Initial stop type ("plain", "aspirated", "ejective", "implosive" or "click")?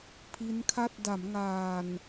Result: aspirated